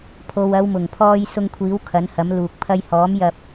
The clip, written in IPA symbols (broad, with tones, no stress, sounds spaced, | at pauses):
pʰ o˨ w ɐ˨˧ w m ʊ˨˩ ŋ pʰ ɔː˧ j s ʊ˧ ŋ kʷʰ iː˨˥ w kʰ ɐ˨˥ n h ɐ˨˥ m l uː˨ k̚ pʰ ɐ˧ j h ɔː˨˥ m j ɐ˧ p̚